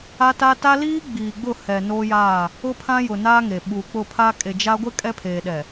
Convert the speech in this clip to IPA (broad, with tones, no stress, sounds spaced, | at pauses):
a˦ t a˦ t a˦ l iː˦ ɡ͡b iː˨ ɡ͡b ʊ˦˨ h ɛ˨ n oː˦ j aː˦˨ | ʊ˦ pʰ ã˦ j ʊ˨ n aː˦ ŋ e˨ ɓ uː˨ k͡p ʊ˦˨ pʰ a˦ kʼ e˨ d͡ʒ a˦ ɡʷ ɪ˦ kʼ ɛ˦ pʰ eː˨ ɗ ɛ˨